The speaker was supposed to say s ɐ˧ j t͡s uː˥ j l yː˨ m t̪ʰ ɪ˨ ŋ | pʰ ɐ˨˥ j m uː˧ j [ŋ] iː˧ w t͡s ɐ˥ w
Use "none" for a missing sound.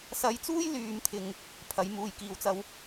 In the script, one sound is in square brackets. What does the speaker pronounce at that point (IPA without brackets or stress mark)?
k